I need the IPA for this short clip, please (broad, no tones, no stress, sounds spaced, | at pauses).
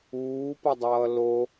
uː p ʌ dˤ ʌː l o